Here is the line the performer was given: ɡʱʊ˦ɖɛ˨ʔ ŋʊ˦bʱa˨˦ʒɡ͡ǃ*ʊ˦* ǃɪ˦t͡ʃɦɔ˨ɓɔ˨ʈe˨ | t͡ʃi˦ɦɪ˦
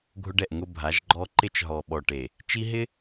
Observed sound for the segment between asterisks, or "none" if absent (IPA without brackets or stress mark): ɔ˦